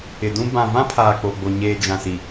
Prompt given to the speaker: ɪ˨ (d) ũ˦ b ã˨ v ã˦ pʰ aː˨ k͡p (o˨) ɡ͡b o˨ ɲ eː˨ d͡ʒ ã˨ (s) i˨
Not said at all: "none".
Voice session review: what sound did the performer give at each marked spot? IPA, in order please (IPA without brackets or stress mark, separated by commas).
d, o˨, s